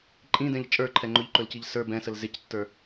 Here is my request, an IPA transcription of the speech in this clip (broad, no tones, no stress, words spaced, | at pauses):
ǃʼĩdɛ̃ʎ t͡ʃʼə˞ǃʰɛ ŋ͡ǃʊʎǃɵlciʎ sə˞ bɛ̃səl zɪctːə˞